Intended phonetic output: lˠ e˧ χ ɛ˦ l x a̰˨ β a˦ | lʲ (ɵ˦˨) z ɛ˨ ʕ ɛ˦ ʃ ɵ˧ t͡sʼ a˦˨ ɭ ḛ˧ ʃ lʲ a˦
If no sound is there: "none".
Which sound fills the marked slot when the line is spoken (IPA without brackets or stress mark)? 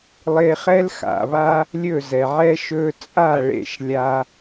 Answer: ɵ˦˨